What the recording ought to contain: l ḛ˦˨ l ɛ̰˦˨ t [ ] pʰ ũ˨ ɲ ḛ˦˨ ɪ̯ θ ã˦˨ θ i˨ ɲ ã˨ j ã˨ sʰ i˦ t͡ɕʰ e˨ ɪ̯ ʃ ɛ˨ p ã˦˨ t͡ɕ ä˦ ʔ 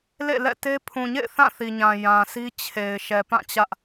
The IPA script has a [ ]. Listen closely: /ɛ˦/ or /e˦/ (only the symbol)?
e˦